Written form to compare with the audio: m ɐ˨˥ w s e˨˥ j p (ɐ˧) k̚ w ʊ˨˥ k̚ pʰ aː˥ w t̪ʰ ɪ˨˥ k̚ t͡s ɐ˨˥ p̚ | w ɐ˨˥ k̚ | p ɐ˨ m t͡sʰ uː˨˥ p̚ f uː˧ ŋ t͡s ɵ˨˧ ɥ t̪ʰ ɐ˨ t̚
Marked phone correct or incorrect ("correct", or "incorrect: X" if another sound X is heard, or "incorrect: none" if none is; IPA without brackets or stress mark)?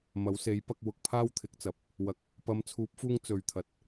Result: correct